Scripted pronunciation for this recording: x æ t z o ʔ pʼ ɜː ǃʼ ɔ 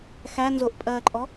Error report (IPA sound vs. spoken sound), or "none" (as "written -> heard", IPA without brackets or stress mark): t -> n